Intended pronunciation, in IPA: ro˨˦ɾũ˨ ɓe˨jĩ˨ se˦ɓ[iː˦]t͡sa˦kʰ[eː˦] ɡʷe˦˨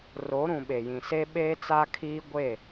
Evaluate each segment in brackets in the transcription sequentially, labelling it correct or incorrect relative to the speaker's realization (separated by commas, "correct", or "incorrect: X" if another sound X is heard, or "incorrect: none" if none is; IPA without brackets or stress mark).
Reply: incorrect: eː˦, incorrect: iː˦